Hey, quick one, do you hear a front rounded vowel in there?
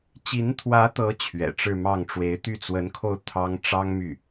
yes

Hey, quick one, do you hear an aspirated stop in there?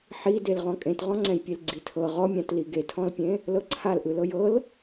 yes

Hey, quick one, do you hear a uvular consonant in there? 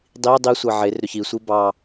no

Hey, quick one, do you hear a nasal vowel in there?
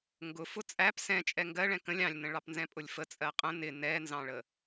yes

